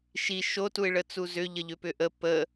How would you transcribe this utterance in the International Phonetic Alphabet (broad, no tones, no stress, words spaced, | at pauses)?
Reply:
ʃi ʃotuɪ̯ɭə t͡suzʏ ʎəʎʏpʏʔə pə